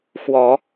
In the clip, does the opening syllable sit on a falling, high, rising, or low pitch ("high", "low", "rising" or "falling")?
low